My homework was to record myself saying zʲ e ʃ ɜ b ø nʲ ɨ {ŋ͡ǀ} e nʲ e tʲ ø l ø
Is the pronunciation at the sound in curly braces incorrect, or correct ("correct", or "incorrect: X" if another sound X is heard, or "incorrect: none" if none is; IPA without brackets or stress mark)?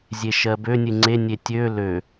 correct